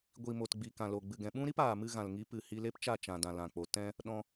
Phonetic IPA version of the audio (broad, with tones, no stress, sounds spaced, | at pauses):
ɡʷ i˨ m o˨ t ɡ͡b i˨ k ã˨ l o˨ ɡ͡b ɨ˨ ɡ ɛ̃˨ ɓ ũ˦ ɾ i˦ p aː˨ m ɨ˧ ɣ ã˨ l ŋ i˨˦ p ɨ˨ h i˧ l e˦ p t͡ʃ a˦˨ t͡ʃ ã˨ d ã˨ l ã˨ k͡p o˨ t ɛ̃˧ | ɗ ɔ̃˧